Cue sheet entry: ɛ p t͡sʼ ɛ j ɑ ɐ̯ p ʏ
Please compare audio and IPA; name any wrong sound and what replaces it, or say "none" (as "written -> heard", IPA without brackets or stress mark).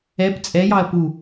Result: ʏ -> u